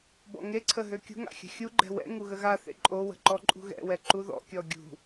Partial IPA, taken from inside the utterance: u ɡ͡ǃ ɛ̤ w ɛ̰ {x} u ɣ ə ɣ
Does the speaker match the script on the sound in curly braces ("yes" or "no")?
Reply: no